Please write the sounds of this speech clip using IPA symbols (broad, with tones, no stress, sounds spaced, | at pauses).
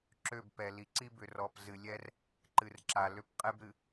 ǁ ø˦˨ b p ɛ˨ l i˨ ǀ i˦ b ʏ˨ r ɔ˨ p z ɨ˨ lʲ ɛ˦ r | ǃ ɨ˨ r ǁ a˨ l ʏ˦ p qʼ ɛ˦ b ɾ ɨ˨